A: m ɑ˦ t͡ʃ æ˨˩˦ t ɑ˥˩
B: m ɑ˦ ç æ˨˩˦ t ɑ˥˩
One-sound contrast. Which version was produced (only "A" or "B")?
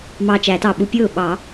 A